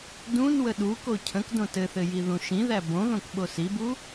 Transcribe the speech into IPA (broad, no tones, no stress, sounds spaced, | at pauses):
d ũ n w ə ɗ u k o cʰ ə̃ k d õ t ɘ θ ɘ j i ð ũ ʃ ĩ ð æ b õ ð õ k ɓ o s i b u